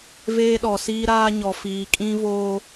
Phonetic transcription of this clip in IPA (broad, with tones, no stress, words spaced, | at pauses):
veː˦ɗɔ˨siː˦ɾaː˦ ɲɔ˨fiː˨kʼĩ˦voː˦